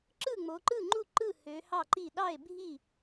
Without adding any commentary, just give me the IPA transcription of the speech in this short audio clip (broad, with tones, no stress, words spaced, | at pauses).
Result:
ǁɯ˥˩ŋ͡mo˩˧ǃɯ˥˩ŋ͡ǃu˥˩ ǃɯ˥˩ hø˩˧ hɑ˥˩ǃi˥˩ ɗɑ˥˩e̯bʱi˥˩